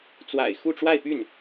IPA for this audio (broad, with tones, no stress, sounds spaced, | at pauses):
t͡s w a̰˨˩ ɪ̯ x u˥˧ ʈ͡ʂ w a˥˧ ɪ̯ p y˥˩ n